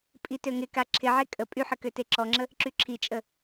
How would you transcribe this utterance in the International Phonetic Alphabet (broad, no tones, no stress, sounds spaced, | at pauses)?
pʼ i t ø ŋ ɪ k a ǁʰ ɪ ʕ e kʼ ə pʼ y ħ ə k ø t e ǁ ɔ ŋ͡ǁ ə | ǁ y ǁʰ i t͡ʃʼ ə